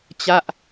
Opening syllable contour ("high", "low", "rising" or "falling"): falling